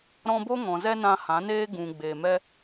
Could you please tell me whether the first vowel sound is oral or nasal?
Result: nasal